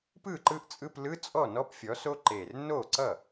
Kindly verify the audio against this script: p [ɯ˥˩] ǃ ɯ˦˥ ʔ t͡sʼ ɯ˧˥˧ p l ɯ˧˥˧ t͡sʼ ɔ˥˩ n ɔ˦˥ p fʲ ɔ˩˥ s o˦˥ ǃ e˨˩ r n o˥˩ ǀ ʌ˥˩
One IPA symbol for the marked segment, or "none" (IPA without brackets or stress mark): ɯ˥˩